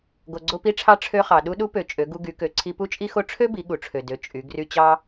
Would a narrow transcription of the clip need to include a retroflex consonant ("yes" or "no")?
yes